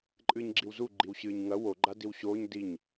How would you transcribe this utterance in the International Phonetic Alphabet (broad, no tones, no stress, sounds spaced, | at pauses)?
ǃʼ ɨː ɲ ɡ͡ǁ i w z u ɡ͡ǃ i w ɕ ɨː ɲ ŋ ɐ w o ɡ͡ǃ a d i w ɕ oː ɲ d i ɲ